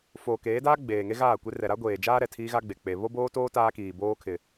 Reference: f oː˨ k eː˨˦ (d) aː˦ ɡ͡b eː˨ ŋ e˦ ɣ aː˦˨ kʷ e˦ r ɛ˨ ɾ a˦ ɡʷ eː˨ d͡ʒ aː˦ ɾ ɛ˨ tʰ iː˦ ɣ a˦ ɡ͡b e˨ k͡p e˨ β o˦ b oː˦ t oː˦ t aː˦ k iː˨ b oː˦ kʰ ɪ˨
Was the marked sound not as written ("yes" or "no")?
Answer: no